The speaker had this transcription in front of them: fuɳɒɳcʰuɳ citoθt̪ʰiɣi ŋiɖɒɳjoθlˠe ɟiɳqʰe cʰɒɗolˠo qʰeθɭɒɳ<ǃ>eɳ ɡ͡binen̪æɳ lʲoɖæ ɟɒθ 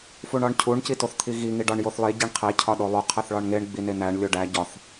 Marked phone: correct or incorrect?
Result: incorrect